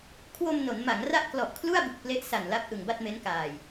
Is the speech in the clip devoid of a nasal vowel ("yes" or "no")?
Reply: yes